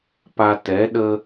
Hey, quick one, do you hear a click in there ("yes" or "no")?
no